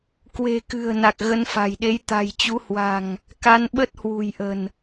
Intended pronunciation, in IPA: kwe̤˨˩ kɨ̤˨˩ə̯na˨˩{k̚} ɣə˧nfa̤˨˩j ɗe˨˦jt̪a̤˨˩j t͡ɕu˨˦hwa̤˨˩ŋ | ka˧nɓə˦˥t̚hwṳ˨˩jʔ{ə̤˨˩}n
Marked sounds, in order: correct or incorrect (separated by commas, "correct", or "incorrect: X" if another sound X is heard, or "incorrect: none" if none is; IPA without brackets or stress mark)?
correct, correct